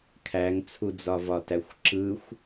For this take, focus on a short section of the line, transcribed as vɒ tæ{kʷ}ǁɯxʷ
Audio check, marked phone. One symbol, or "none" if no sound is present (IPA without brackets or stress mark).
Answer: xʷ